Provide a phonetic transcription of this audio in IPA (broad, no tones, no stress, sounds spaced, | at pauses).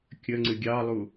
kʲ ə ŋ͡ǀ ɨ ɡʲ ɑ lˠ u